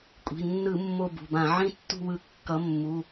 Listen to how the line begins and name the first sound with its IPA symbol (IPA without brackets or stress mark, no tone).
kʷʼ